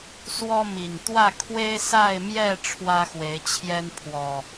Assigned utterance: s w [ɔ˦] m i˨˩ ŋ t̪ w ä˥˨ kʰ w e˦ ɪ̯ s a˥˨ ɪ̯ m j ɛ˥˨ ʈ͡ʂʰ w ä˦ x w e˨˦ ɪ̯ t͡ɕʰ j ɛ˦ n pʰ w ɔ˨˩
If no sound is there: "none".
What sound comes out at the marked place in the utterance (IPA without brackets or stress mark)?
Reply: ɔ˦